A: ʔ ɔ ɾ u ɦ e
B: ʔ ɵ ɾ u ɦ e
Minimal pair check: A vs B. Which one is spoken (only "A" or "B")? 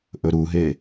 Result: B